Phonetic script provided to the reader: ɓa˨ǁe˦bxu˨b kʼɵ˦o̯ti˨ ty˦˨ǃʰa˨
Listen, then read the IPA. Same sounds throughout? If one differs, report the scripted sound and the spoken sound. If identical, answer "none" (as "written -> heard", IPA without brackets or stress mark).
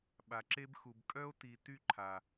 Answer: ɵ˦ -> œ˦